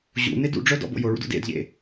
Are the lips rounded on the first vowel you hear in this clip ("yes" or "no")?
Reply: yes